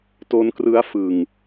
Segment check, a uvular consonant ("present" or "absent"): absent